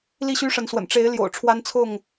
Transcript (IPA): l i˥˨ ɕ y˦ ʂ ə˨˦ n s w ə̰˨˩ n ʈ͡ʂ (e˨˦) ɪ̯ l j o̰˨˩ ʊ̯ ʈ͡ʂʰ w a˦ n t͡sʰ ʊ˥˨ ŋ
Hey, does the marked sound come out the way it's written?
yes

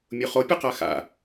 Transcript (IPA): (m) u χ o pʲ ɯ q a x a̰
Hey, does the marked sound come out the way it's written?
no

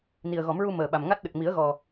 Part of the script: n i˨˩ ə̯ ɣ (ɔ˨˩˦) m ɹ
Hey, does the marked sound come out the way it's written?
yes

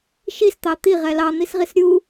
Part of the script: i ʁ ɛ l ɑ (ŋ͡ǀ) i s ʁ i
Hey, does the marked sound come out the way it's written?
no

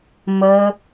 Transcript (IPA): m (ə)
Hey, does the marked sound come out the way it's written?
yes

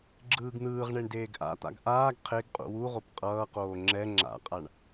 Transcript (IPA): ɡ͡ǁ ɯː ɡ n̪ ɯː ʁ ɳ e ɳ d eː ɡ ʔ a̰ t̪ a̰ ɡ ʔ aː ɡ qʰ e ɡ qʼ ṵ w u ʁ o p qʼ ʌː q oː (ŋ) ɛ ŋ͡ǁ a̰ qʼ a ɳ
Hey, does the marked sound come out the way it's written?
no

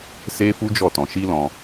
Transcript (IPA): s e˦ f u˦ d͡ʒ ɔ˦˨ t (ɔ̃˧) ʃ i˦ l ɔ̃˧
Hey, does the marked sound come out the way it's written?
yes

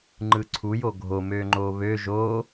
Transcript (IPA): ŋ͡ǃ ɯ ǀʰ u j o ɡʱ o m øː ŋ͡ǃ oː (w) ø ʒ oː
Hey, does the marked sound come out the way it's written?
no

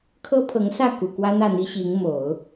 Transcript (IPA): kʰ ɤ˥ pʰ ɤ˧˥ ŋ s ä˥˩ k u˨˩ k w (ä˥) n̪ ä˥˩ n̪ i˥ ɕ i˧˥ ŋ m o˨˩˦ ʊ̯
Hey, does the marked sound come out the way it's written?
yes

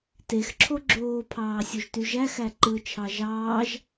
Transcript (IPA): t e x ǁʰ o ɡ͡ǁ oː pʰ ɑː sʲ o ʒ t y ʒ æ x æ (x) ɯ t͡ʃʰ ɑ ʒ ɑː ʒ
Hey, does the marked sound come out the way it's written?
no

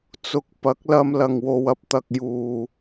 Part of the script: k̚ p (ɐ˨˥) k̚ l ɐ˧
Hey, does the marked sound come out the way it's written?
yes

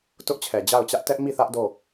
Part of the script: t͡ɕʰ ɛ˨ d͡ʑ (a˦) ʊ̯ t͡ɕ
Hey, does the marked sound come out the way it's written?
no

